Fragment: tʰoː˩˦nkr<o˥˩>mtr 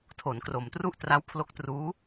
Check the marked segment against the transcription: incorrect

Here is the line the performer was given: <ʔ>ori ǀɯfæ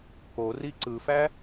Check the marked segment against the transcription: incorrect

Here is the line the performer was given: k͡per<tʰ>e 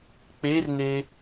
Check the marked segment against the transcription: incorrect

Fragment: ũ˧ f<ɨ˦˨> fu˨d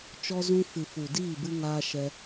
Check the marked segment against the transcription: incorrect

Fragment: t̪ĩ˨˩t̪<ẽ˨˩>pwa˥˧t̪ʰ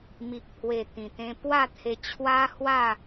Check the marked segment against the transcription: incorrect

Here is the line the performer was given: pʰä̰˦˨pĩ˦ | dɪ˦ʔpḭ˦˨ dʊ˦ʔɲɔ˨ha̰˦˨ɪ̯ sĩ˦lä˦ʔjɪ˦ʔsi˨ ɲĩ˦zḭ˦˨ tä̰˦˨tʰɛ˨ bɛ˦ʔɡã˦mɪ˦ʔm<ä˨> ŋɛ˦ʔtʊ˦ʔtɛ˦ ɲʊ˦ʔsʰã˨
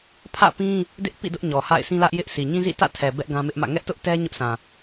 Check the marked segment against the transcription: incorrect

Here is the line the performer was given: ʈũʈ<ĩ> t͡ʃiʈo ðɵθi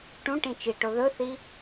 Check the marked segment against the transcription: correct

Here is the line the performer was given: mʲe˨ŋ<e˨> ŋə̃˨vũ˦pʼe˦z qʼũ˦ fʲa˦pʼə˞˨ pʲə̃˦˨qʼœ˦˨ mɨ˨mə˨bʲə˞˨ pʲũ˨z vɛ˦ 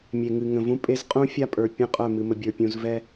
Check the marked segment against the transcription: incorrect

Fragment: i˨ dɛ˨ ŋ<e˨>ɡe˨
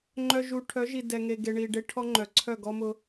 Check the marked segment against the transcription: correct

